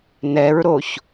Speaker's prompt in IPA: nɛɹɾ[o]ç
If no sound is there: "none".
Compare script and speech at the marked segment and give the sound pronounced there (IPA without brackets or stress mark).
o